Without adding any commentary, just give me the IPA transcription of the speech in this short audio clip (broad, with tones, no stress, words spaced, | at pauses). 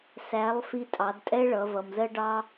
sæ˩˧lˠ fi˧tʼɑ˩˧dtʼɛ˥ɭʌ˩˧ vʌ˩mzɜ˥ɖɑ˥